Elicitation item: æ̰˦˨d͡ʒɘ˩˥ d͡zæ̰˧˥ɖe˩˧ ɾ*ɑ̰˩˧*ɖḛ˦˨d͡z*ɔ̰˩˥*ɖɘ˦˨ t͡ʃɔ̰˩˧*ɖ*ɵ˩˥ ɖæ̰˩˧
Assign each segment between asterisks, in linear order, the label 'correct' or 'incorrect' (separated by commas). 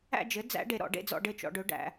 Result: incorrect, incorrect, correct